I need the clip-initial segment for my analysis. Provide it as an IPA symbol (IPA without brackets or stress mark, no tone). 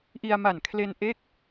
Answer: ʔ